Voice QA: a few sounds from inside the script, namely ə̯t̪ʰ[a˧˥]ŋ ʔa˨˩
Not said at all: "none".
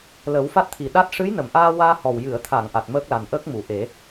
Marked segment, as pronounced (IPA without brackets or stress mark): a˨˩˨